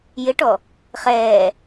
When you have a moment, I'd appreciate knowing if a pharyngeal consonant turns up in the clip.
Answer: no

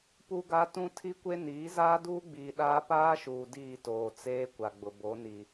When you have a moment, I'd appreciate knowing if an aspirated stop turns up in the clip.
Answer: yes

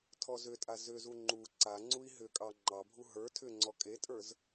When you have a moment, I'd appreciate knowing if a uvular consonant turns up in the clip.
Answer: no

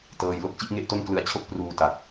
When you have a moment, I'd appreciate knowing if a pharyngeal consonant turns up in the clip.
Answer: no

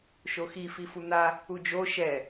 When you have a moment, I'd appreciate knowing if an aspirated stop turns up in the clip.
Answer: no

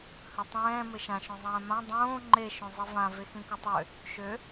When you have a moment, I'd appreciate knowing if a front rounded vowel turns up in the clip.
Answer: yes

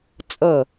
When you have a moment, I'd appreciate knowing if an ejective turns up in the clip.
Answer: yes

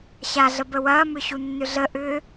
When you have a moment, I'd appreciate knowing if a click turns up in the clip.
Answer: no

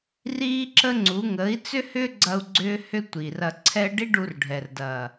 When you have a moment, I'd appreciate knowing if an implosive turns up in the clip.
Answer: no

